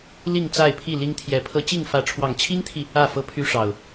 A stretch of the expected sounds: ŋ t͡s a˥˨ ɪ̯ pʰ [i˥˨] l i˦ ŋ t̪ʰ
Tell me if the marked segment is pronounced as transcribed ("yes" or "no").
yes